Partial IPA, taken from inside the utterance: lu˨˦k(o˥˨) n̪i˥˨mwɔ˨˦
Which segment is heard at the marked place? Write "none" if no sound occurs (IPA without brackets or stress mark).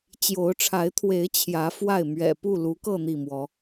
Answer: ɤ˥˨